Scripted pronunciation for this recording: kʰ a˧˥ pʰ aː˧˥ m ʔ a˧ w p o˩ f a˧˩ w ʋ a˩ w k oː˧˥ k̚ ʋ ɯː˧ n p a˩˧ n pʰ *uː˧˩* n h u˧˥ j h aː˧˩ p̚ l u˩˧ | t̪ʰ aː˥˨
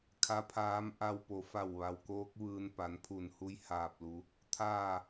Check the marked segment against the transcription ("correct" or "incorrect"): incorrect